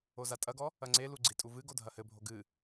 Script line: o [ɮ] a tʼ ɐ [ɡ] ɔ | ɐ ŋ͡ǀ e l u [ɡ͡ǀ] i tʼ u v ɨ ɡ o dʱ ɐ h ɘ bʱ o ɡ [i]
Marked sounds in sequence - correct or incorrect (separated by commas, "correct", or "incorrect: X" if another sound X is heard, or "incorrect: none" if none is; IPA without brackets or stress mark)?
incorrect: z, correct, correct, incorrect: ɨ